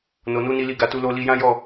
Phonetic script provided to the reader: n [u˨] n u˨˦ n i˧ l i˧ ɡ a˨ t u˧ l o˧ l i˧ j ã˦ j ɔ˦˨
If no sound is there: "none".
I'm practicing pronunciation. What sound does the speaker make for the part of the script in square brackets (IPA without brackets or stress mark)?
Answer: o˨